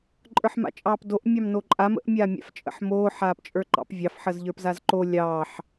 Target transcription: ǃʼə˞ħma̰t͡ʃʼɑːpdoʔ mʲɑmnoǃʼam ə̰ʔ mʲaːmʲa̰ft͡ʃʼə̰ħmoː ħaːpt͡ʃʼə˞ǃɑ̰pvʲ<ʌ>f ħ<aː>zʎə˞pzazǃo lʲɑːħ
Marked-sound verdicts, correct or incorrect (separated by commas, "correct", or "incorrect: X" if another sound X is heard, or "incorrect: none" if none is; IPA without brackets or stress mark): incorrect: ɑ, incorrect: əː